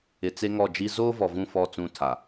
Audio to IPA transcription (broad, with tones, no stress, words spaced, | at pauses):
ɪ˨ t͡se˦ŋɔ˦˨d͡ʒi˦ zoː˦vɔ˨vũ˦˨ fɔ˦˨t͡sũ˦˨ tʰa˨